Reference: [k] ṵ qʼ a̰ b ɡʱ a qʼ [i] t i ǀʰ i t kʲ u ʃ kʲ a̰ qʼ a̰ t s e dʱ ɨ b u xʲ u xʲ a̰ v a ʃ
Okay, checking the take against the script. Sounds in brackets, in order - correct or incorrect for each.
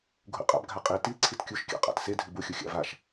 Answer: incorrect, correct

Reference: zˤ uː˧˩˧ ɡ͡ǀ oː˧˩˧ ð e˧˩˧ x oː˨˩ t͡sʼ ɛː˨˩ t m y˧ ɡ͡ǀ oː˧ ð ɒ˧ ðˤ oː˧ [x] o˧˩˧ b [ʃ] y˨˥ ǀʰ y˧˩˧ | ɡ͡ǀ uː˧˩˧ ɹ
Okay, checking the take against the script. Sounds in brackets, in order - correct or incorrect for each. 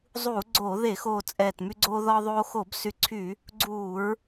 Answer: correct, incorrect

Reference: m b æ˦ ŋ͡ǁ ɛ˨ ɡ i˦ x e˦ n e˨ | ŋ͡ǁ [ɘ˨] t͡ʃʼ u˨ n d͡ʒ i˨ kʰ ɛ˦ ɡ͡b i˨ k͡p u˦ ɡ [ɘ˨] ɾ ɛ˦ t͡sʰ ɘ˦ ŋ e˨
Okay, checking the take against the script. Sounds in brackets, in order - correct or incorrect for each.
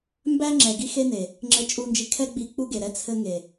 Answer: correct, incorrect

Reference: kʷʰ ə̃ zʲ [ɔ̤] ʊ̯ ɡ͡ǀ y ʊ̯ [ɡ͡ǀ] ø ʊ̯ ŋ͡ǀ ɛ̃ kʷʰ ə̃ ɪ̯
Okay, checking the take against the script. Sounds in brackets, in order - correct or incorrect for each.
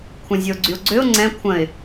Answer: incorrect, correct

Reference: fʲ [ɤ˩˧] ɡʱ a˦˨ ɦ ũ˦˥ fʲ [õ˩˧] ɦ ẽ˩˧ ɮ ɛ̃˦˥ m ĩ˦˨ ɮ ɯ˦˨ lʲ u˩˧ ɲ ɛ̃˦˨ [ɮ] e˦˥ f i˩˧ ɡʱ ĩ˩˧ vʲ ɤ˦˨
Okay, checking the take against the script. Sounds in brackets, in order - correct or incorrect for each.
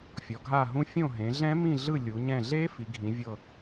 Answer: incorrect, incorrect, correct

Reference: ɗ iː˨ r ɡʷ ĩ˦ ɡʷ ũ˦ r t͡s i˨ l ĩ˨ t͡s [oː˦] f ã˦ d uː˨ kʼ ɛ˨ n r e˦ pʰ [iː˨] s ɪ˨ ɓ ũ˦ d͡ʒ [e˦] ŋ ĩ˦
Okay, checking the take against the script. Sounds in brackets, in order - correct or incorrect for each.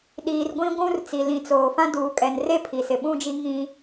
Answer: incorrect, incorrect, incorrect

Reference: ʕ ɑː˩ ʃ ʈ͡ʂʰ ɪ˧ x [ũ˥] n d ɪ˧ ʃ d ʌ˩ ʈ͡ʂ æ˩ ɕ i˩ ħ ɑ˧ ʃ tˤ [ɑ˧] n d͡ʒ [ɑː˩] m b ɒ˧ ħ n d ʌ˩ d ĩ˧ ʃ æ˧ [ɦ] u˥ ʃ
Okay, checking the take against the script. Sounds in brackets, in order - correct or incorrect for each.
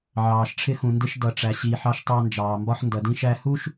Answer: incorrect, correct, correct, incorrect

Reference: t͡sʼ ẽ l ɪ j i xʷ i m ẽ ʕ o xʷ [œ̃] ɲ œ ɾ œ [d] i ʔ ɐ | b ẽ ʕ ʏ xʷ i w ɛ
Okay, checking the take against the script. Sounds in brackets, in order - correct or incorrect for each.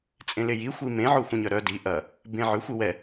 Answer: correct, correct

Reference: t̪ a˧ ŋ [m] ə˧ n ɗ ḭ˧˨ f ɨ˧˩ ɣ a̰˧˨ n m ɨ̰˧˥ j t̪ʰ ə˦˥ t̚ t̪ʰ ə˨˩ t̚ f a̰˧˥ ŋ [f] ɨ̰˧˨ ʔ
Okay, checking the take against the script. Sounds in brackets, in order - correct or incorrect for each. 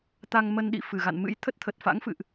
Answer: correct, correct

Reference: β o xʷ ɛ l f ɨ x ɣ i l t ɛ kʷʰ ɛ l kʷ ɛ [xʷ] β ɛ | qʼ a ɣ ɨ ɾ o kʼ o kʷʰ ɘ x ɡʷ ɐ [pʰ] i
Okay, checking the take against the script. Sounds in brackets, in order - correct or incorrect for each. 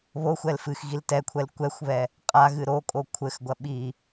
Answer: correct, incorrect

